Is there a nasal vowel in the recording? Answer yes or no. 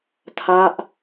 no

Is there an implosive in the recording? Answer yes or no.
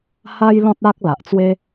no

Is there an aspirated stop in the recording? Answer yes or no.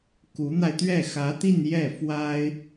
no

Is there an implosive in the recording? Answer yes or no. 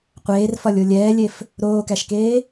no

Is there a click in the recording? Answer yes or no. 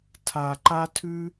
yes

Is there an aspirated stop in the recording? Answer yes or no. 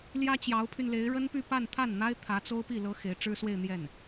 yes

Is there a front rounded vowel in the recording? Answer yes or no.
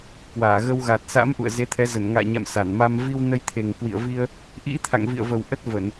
no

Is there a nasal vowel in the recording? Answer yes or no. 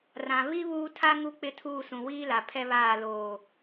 yes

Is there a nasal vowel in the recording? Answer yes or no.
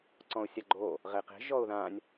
yes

